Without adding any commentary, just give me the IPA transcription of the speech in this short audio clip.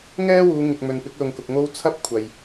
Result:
ŋɛː˥wuː˨˧ ŋɪ˨k̚ mɵ˨npɪ˨˥k̚lʊ˨ŋkʊ˨k̚ ŋo˥w t͡sʰɐ˥p̚ kʷʰɐ˨j

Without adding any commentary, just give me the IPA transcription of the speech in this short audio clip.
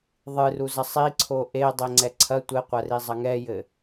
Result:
ðˤɨruzɐ sˤiǀʰo ʔe dˤeŋ͡ǀɛǀʰɐ tʷɘqʷɐ rizˤɐŋɛjɘ

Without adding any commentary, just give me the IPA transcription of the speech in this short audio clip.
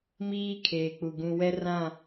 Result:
miː˦kʰeː˨k͡pu˨ ɡũ˨wɛ˦rã˦˨

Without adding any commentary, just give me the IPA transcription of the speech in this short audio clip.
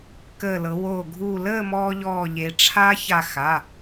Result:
kəː˧˩lɤ˩˧ wo˧˩ ɡʱuː˧˩ləː˥˨ mɔː˧ʎɔː˧˩ ʎe˩˧ʈ͡ʂʰa˦˥ça˧˩ xa˩˧˩

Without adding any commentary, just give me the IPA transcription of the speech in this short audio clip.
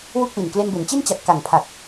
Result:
wu˥˩k̚wi˨˩n kle˧nbe˩˦nt͡ɕi˥˩n t͡ɕa˨˩t̚ka˨˩ŋpʰa˨˩k̚

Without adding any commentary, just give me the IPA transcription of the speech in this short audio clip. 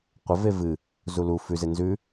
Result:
qʷɐve vɨ | zulu fʉze nzʉ

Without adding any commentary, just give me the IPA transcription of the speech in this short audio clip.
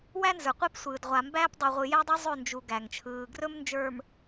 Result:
wæ˦nzə˞˨qʷe˦psʷɯː˨d ʁʷa˨mbæː˦p dˤi˨ʁʷɯ˨jæ˦dˤo˦ zˤɵ˦˨nd͡ʒu˨ ɡæ˨ŋt͡ʃʰɯː˨ ɡrɵ˦mnd͡ʒə˞˨m

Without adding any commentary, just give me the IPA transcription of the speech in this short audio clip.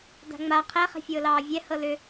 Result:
da̤ŋ͡ma qʰɛ χɛ̤fʲʊːlɑːvʲɛ hɤlʏ

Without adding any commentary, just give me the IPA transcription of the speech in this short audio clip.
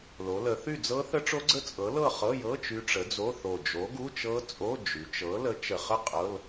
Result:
lo˩˧lə˩˧θy˥˨d͡zɤ˦˥ θə˦˥ʈ͡ʂo˦˥ɡ͡ǀə˦˥ t͡sʼɤ˨˥lɤ˥˨ χɤ˧˥˧jɤ˧˥˧ t͡ʃy˦˥ʈ͡ʂə˨˥d͡zo˧˥˧ θo˨˩ d͡ʒo˨˥ɡu˧˥˧t͡ʃɤ˦˥t͡sʼo˧˥˧ d͡ʒy˩˧t͡ʃɤ˨˥ lə˨˥t͡ʃə˨˩χə˥˨ qʼɤ˧˥˧l

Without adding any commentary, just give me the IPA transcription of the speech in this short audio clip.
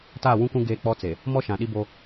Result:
taː˦˨wũ˦kũ˦ ɡeː˦k͡pɔ˦t͡se˨ | mɔ˦ʃã˨ɗi˦bo˦

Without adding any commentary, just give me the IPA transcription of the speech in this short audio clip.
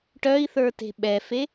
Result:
ʈœi̯θə˞te̤ ɓɛfe

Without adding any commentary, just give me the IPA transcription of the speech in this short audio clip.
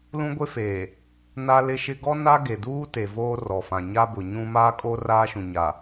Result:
lũ˦ɡʷe˦feː˨ | na˦lɪ˦ʃɪ˦ ɡɔ˦na˦ ɡe˨duː˦ te˨voː˦rɔ˨fã˨ ɲa˦bʊ˨ ɲũ˦ maː˦kʼo˦raː˦ʃũ˨ ɲa˨

